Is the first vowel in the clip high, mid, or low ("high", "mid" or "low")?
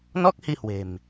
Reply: mid